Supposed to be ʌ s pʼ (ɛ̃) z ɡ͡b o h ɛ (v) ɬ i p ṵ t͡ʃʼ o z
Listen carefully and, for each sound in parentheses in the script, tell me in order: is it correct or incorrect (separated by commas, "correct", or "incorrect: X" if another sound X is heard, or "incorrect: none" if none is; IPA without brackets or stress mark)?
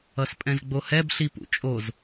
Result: correct, incorrect: b